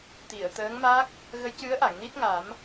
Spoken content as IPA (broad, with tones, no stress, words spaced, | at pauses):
t̪i˨˩˨ə̯t̪əː˧˥ŋma˦˥k̚ | ɣə˧˥jcɨ˧˥ə̯ʔa˨˩˨ŋ ni˦˥t̚ŋa˨˩˦m